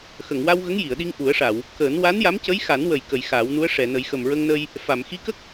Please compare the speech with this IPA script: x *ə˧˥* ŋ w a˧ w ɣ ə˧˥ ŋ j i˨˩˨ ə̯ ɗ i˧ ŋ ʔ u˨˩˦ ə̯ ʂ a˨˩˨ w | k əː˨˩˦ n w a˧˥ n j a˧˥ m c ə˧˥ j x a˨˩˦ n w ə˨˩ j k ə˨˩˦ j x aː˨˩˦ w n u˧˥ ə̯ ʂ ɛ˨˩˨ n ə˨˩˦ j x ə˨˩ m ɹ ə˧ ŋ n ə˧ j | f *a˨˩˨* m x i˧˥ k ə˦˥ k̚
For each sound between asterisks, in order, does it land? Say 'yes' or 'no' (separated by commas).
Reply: no, yes